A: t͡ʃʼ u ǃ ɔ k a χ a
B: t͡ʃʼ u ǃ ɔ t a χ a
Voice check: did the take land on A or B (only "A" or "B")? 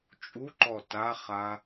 B